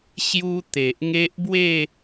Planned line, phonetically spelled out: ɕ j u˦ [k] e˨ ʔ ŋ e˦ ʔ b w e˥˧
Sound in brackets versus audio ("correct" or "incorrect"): incorrect